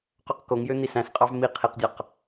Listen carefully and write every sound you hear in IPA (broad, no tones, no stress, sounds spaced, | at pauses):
q ø q k o ŋ j ø n̪ i s æ̃ s qʼ ɑ v m i qʰ i q dʲ ɑ q